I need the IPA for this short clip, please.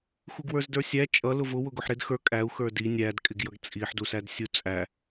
x u ɡ w ə˞ z d ə˞ sʲ æ t͡ʃʼ ʌ l ʊ v ʊ w ʊ ɡ ʊ ħ ɾ ɪ d x ə˞ kʼ æ u̯ x ə˞ d i nʲ æ d kʼ ɪ ɡ j ʌ ɡ t͡sʼ i ħ d u s æ d sʲ u t͡sʼ æ

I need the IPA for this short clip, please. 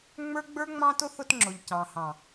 ŋ͡m ə˞˦ ɡ͡b ə˞˦ ŋ͡m ɑ̃˦ t ʊ˦ θ ʊ˦ t ŋ͡ǁ ʊ˨ ʎ c ɑ̃˨ h ɑ̃˨

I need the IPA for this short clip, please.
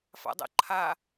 f a̰ dˤ ə̰ ǃʰ a

